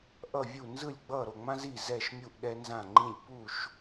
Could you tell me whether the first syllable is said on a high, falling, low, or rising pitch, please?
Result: falling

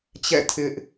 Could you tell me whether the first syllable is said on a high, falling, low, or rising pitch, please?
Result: falling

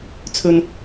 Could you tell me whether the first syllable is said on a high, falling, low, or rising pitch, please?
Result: high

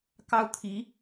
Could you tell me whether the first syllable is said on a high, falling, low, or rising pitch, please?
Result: high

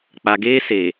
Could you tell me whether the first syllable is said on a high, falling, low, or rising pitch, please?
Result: low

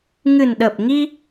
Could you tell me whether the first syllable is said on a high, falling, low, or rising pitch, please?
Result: low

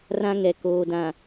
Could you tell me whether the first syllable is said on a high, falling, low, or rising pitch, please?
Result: high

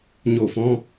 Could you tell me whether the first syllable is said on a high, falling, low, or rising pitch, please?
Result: falling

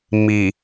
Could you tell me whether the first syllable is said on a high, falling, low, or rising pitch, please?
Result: low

